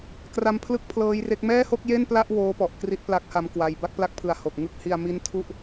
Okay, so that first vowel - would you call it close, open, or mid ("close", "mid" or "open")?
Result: open